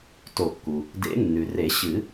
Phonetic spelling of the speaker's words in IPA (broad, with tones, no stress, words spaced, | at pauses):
to˨˩˦kːu˩ | dḛ˨˩˦nːʉ˩re˨˩˦ ɕɨ˨˩˦